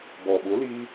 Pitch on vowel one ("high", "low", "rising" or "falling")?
low